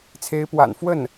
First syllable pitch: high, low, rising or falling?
rising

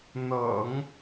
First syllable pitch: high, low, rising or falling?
low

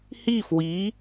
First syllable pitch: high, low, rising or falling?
falling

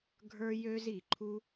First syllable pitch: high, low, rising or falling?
high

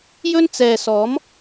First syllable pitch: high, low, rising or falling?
high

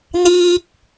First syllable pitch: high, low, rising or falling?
high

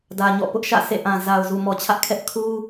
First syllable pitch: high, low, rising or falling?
low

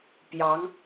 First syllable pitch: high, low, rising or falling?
rising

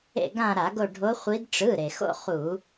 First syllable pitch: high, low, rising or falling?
falling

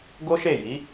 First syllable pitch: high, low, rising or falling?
high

